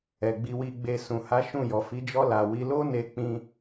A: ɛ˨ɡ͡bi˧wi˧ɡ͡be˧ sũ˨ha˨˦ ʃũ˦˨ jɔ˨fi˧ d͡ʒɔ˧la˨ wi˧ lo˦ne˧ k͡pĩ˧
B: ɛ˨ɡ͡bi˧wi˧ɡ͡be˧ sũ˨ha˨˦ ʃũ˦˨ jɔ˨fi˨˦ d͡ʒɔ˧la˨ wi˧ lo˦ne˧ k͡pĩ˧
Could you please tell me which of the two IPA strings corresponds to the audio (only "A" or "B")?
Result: B